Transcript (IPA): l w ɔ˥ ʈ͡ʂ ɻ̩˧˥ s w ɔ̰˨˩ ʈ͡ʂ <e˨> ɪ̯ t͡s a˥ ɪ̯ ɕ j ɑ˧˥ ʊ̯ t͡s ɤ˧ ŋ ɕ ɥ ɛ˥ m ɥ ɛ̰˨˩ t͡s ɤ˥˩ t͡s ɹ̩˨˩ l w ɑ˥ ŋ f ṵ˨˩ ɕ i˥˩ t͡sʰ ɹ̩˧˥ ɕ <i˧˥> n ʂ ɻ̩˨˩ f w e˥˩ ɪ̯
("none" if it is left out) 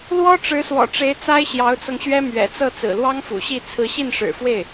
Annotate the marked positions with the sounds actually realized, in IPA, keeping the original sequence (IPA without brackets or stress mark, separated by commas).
e˧˥, i˥˩